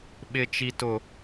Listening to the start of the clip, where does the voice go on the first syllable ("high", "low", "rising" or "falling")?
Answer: high